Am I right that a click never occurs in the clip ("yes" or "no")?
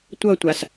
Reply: yes